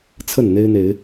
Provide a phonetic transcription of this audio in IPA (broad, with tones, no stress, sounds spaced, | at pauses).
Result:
t͡sʰ ə˥˨ n n̪ e˦ ɪ̯ n̪ e˨˦ ɪ̯